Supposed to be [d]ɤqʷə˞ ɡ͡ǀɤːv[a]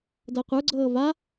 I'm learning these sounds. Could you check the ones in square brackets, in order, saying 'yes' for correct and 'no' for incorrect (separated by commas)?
yes, yes